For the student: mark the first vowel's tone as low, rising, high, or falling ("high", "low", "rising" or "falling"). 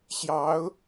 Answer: rising